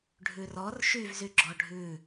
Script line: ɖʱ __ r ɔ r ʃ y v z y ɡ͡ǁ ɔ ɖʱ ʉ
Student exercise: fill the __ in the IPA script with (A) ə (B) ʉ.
B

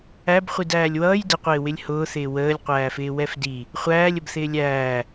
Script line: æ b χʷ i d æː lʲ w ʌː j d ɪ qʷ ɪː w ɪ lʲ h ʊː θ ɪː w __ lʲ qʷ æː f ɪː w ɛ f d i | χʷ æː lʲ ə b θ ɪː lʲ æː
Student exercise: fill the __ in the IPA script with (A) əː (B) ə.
A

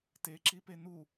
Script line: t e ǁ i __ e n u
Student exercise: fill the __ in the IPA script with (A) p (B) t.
A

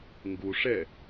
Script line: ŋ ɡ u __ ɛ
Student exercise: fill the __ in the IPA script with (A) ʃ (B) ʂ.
B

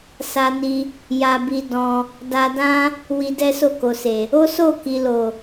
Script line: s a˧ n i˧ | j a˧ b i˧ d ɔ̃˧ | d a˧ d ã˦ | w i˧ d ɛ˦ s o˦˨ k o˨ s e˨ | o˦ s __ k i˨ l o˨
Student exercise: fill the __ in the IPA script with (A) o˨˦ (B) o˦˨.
B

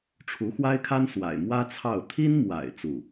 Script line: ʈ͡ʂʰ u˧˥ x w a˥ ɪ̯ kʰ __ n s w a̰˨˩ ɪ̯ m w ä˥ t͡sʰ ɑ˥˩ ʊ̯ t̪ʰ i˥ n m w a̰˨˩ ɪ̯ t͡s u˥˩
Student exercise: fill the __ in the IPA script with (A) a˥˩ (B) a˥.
B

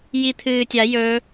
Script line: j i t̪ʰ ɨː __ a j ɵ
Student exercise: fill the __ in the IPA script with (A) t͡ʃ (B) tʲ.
B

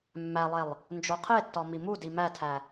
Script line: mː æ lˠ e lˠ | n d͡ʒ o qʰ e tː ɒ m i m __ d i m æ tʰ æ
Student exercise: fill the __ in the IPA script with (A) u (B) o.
A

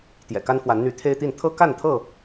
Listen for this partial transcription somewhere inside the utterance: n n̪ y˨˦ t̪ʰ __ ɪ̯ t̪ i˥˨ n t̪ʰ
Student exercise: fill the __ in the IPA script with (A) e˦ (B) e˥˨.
A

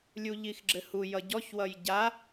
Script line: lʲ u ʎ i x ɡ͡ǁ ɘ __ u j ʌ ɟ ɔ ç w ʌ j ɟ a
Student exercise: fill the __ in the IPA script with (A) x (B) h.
B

